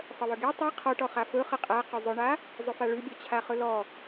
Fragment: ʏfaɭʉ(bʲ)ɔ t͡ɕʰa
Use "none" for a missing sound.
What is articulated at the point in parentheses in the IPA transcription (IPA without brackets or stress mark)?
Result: bʲ